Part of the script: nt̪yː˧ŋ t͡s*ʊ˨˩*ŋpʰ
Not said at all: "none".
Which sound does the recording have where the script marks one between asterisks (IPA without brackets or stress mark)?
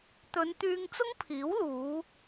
ʊ˥